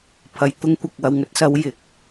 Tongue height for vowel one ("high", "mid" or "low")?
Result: low